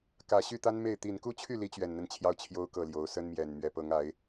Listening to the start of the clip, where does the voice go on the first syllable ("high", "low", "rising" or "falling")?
low